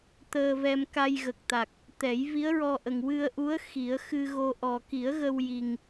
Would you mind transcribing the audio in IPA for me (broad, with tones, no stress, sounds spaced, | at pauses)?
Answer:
t̪ əː˧ v ɛ˧ m k a˧ j ɣ ə˨˩ k̚ t̪ a˨˩ k̚ | t̪ ɛ˨˩˦ j v i˧˥ ə̯ ɹ ɔ˧ ʔ ə˨˩ ŋ w ɨ˧ ə̯ ʔ u˧˥ ə̯ x i˨˩˦ ə̯ x ɨ˧ ɣ o˧ ʔ ɔ˨˩ k i˨˩˦ ə̯ ɣ ə˧ w j i˨˩ ŋ